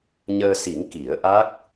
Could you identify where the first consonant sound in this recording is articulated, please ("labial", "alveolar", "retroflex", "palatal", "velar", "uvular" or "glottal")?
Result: palatal